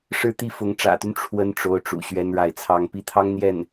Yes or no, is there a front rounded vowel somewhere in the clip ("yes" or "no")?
yes